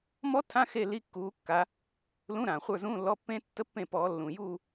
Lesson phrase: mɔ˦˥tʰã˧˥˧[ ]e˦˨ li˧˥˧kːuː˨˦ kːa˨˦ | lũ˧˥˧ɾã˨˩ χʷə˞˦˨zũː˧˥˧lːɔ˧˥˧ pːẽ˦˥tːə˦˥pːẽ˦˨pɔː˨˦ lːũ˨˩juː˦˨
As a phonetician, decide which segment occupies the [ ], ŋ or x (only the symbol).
x